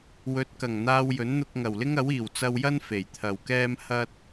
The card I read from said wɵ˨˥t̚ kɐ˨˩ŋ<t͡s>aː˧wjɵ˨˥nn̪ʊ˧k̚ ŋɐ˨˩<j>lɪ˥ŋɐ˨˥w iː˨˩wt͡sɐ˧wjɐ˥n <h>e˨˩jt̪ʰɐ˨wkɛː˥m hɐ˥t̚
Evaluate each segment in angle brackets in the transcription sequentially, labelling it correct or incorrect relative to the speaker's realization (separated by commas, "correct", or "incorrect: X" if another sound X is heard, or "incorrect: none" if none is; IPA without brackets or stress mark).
incorrect: n̪, incorrect: w, incorrect: f